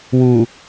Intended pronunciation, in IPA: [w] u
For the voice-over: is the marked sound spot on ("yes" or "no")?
yes